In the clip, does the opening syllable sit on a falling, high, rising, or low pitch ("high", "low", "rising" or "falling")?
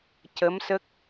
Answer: rising